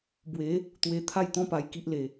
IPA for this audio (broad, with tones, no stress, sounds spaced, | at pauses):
b w e˨˦ | t̪ w e˧ t̪ʰ a˥˧ j t̪ ɔ̃˦ p a˧ j k i˦ ʔ l e˧